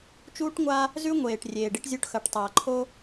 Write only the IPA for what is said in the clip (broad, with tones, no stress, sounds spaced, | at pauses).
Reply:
t͡ʃ uː˦ ʈ ŋʷ a˦ | z ʉ˦ ŋʷ eː˨ ʈ rʲ eː˨ ɖ i˦ ʈ zʲ u˦ ʈ x ɐ˨ ʈ tˤ ɐː˨ ǃʰ o˦